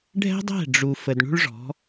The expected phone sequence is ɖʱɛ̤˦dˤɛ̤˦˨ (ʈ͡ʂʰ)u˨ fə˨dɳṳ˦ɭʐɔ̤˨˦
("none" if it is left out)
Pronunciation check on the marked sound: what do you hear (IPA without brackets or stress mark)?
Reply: ɖ͡ʐ